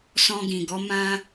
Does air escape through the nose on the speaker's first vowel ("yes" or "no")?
yes